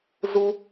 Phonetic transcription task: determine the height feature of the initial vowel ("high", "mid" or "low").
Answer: high